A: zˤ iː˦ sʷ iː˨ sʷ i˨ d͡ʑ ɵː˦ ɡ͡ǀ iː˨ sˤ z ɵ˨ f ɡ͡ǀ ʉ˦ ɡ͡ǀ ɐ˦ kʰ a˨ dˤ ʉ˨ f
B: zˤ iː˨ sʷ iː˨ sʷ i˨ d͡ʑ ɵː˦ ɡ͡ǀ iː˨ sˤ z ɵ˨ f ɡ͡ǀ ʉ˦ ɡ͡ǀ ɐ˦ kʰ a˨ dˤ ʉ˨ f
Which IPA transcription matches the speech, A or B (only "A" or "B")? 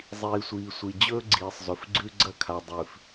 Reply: B